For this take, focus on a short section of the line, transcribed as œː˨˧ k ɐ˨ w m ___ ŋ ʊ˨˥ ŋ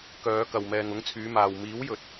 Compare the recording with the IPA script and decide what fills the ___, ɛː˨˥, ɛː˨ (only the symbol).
ɛː˨